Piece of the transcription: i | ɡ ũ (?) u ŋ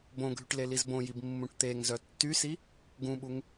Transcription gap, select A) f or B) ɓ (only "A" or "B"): B